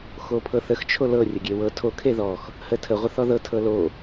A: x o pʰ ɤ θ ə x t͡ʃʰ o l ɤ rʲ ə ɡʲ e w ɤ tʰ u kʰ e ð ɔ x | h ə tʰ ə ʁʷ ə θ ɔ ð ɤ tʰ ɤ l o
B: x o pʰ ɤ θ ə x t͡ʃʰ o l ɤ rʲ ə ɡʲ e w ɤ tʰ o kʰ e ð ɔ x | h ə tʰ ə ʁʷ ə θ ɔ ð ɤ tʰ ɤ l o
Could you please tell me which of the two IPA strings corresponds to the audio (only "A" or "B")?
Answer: B